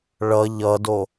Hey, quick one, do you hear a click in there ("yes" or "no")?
no